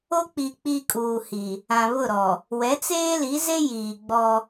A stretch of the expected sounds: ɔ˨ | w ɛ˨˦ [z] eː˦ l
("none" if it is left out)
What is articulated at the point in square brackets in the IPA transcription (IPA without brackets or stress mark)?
t͡s